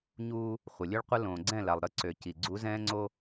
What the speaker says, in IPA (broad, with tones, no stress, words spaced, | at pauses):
ɲuː˦ | χʷə˨lʲø˦ɭ qʷə˦ lõː˨ɡ͡ǀɛ̃˦˨la˨lˠ ɾə˦ǀø˨ ci˨ ɡ͡ǀu˨˦zɛ̃ː˦ŋ͡ǀo˦